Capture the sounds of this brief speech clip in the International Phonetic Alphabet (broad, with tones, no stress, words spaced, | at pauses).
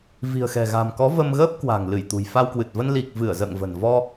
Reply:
vi̤˨˩ə̯xɛ̤˨˩ɣa̤˨˩mkɔ˨˦ və˧mɣəː˦˥p̚kwa̤˨˩ŋ lɨ˧˩jt̪ṳ˨˩jfa˧wkwɨ˨˩t̚ və˧nli˨˩k̚ vɨ˧˩ə̯zə̰ː˧˨ŋvə̤˨˩n vɔ˧